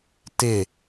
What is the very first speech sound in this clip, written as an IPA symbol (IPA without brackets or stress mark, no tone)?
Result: t